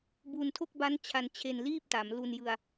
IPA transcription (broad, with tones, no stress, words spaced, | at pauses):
bu˧ntʰo˥˩k̚ba˦˥n t͡ɕʰa˧nt͡ɕʰe˧nliː˥˩p̚ta˩˦m lu˧njɯ˧a̯